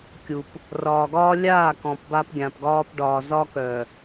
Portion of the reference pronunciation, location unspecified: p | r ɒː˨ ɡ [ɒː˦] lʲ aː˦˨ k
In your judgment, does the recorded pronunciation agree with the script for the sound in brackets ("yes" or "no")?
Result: yes